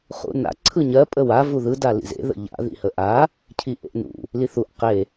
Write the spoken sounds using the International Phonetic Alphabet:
χ ṵ n a̰ ǀʰ ɯ ɲ ɜ pʼ ə w a v u ð ɯ d a l ḭ z ḛ ð ə̰ ʎ a̰ ð ḭ h ə ʔ a | cʰ i ʔ ḛ ʔ n ṵ | l i θ u ʔ q e

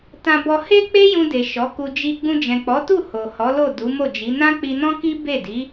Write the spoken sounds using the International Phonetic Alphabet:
t ã˧ b ɔ˧ h e˦ k͡p e˦ j ũ˧ d e˨ ʃ ɔ˨˦ k u˧ d͡ʒ i˧ ɡ͡b ũ˧ d͡ʒ ɛ̃˨ k͡p ɔ˨˦ t u˦˨ h o˨ h ɔ˨˦ l o˦˨ d u˨˦ m o˦˨ d͡ʒ i˨˦ n ã˦ k͡p i˧ n ɔ̃˦ k i˦ b e˦˨ d i˨˦

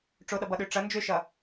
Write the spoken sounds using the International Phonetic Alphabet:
ʈ͡ʂ o ɗ ʌ b ʌ ɗ ø ʈ͡ʂ ʌ n d͡ʒ ø ʃ ʌ

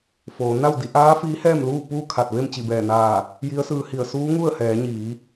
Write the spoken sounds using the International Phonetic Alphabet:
f oː˩˧ n a˥˨ w d i˩˧ ʔ aː˧˥ f iː˧˥ h ɛː˥˨ m l uː˥˨ p uː˥˨ kʰ a˧˩ t̚ ʋ e˥˨ m t͡ɕ i˧˩ b ɛː˧˩ n aː˧˩ | j i˧˥ ə̯ s ɯː˧ h i˧˩ ə̯ s uː˧˥ ŋ u˥˨ ə̯ h ɛː˩˧ ɲ iː˩˧

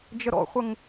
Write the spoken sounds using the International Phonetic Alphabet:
d͡ʒ ə ɾ ɔ̰ χʷ ə ŋ

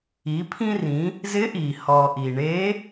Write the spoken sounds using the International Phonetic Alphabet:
i˩˧ pʰ ĩ˧ r ĩ˩˧ | z ɪ˧˥ ʔ i˩ h ɔ˩ ʔ i˩ ɳ e˧˥

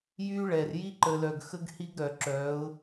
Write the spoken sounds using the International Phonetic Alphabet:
j y˦ ɭ ɛ˨ r j i˦ ǃ ə˨ l œ˨ ɡ x ə˦ ɡ h i˦ ɡ ɾ œ˨ ǁ œ˨˦ ʊ̯

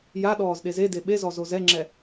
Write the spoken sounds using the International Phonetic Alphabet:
j a ɗ ɔː z ɗ e z e d e ɓ e z ɔ z o z ɛ ŋ͡ǁ ɛ

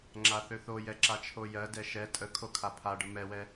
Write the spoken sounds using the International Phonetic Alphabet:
ŋ͡ǁ a θ ø θ o j ɛ ǁ a t͡ʃʰ o j ɜ d ɛ ʃ ɛ tʼ ə kʰ o kʰ a pʰ a ɖ ə m ɛ w ɛ

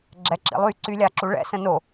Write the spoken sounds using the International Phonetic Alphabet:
ɡ͡ǁ ɛ ǁ ḭ lˠ y ǀ y lʲ a ǁ u ɭ ɛ̰ s ə̃ n o

